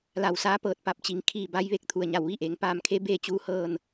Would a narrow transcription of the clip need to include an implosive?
no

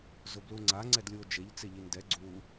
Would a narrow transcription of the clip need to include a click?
yes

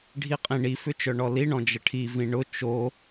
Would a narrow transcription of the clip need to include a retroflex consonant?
yes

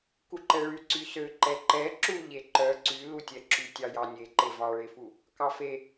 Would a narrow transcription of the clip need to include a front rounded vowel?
yes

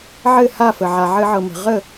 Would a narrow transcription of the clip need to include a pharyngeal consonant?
yes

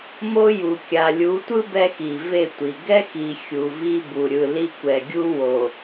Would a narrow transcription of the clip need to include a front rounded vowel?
no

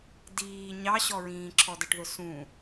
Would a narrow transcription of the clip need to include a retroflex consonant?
yes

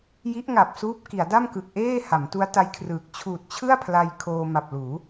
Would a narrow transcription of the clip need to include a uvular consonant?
no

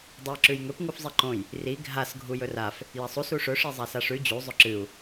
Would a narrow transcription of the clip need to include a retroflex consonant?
yes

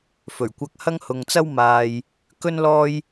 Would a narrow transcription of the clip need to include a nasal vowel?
no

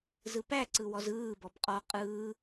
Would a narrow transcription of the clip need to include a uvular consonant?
yes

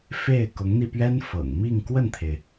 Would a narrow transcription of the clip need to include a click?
no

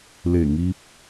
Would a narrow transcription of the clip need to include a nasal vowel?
no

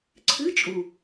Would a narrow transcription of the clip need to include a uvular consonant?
no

